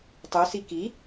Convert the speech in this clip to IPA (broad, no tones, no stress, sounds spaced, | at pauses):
tˤ u s i k i